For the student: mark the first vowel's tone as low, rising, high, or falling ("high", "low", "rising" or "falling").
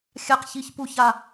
low